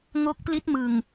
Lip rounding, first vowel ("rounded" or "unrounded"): rounded